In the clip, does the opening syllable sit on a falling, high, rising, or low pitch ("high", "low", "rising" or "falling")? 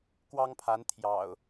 high